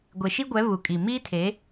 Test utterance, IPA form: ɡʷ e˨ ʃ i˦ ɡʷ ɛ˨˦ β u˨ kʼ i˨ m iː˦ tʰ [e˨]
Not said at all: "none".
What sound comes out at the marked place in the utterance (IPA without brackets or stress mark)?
e˨˦